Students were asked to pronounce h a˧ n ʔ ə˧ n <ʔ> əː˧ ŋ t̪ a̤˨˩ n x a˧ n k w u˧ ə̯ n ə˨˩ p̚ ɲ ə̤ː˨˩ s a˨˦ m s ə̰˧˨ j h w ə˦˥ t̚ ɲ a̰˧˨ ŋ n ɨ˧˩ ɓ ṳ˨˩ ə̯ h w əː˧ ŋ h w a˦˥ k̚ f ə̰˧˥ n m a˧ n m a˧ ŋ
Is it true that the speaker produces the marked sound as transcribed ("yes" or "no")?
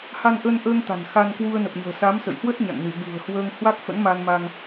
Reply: yes